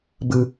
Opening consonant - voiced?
yes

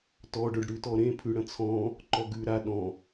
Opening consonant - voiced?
no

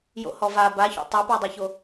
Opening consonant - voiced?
yes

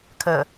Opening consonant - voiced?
no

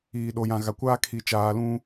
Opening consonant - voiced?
yes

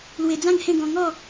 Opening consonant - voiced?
yes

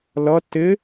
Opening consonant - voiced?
yes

